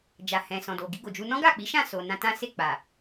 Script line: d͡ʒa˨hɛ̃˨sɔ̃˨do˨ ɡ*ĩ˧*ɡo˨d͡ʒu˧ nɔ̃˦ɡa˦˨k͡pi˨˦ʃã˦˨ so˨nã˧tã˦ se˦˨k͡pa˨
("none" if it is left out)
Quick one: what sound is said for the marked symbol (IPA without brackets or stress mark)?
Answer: i˧